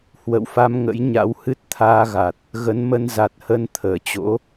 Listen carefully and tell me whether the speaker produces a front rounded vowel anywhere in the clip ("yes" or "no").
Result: no